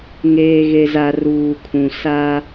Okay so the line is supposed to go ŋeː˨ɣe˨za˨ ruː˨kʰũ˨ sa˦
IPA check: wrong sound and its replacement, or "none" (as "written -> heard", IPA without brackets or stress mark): none